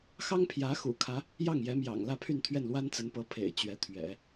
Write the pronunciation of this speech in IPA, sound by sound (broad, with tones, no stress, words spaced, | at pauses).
xɑ˥ŋpʰjä˧˥ xṵ˨˩kʰä˧˥ | jɑ˥˩ŋjɛ˧˥ mjɑ̰˨˩ŋlä˥˧pʰy˥˧n t̪ʰɥɛ˥˩nlwa˥nt͡sə˧˥npɤ˧˥ pʰḛ˨˩ɪ̯ t͡ɕɥɛ˧˥t̪ʰɥɛ̰˨˩˦